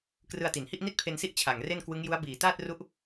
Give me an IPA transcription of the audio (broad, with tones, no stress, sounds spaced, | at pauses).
k r ɯ˧ a̯ t i˩˦ n h i˥˩ ʔ n i˥˩ t̚ pʰ e˧ n s i˥˩ ʔ t͡ɕʰ a˨˩ ŋ r e˥˩ n k w ɯ˦˥ ŋ j u˦˥ a̯ b iː˨˩ t aː˥˩ t̚ r u˦˥ ʔ